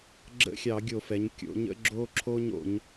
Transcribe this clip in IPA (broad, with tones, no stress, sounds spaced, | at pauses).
ɡ͡ǁ ə̰˧˥˧ xʲ ɑ˧˩˧ ɡʲ o˧˩˧ f ɛ˩˧ ɲ kʲ o̰˩˧ ɲ ə̰˧˥˧ ɡ͡ǁ o˧ ǁʰ o˧ ɲ o̰˩˧ ɲ